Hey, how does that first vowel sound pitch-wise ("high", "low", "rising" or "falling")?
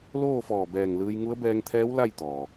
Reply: falling